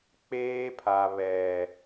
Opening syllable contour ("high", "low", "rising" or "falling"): high